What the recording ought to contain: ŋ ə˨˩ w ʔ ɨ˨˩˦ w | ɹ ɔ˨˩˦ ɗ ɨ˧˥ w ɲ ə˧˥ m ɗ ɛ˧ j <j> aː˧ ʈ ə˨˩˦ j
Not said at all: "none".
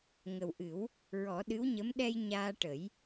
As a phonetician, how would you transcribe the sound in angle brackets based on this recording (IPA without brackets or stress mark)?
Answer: ɲ